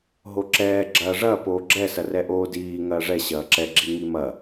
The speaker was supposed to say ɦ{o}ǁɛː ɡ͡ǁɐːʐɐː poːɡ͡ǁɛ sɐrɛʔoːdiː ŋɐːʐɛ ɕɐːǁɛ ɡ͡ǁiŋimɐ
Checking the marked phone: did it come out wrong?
no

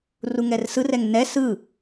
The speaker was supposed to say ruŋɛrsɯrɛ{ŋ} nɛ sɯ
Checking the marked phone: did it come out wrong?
no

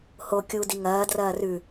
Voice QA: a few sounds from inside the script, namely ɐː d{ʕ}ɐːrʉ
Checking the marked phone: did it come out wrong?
yes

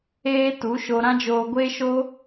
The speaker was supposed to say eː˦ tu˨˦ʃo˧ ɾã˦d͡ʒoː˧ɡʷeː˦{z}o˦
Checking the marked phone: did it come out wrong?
yes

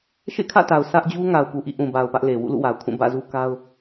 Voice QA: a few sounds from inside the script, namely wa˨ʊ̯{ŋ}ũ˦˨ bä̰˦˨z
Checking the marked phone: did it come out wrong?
yes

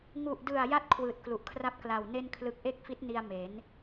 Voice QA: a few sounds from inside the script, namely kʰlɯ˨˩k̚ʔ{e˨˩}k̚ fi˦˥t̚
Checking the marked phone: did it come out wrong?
yes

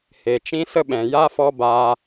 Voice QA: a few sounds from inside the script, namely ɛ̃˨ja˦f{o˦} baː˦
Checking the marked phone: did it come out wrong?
yes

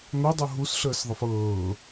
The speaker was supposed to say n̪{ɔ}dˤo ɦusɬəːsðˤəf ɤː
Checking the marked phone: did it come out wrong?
yes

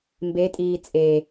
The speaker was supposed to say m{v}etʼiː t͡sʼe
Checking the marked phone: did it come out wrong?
yes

